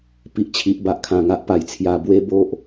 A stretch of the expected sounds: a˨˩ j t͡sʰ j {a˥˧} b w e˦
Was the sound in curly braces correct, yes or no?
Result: no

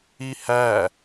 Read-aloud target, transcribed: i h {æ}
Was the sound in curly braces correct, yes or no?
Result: yes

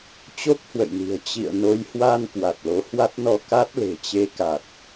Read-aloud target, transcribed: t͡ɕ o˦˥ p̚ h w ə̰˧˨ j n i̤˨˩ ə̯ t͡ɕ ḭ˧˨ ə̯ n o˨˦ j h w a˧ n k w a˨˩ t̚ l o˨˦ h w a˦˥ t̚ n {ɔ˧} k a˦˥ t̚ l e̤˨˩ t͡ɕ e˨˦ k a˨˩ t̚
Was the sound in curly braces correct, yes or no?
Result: yes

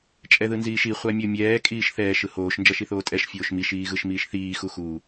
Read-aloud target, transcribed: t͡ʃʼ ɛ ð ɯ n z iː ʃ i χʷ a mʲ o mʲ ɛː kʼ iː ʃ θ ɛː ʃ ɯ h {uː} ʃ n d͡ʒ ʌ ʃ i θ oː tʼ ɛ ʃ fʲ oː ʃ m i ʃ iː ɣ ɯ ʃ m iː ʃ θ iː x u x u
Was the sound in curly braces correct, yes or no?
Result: no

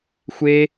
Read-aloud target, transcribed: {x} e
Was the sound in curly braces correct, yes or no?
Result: no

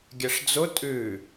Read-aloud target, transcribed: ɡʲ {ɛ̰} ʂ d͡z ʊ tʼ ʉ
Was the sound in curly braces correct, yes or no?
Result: no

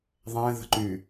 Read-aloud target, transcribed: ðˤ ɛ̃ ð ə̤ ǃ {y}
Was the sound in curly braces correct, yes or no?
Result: yes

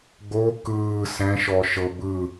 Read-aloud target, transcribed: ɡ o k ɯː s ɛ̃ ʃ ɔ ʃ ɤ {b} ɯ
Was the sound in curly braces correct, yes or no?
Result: yes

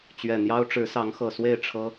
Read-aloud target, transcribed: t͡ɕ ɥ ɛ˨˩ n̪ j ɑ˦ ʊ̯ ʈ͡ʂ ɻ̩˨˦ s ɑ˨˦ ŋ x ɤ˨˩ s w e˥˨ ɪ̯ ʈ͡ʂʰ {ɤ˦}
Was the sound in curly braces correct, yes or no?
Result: yes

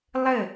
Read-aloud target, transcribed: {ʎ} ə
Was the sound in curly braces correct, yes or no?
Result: no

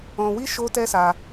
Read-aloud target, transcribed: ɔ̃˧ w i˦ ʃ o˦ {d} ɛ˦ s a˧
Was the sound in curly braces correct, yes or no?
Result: no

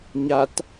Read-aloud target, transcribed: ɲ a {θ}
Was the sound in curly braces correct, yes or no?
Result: no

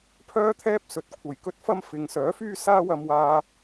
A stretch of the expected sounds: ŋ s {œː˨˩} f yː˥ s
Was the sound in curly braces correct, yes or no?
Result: no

